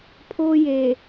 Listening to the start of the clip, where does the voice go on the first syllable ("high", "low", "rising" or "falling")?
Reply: high